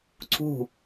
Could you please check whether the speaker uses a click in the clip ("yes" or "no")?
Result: yes